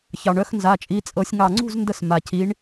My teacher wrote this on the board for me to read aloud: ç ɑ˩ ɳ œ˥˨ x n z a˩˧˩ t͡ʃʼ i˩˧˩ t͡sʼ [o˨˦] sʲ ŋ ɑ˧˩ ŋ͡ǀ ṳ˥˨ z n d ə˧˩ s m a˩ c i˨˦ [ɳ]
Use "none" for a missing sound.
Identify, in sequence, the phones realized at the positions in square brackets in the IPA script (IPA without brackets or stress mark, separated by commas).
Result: ɤ˨˦, ɳ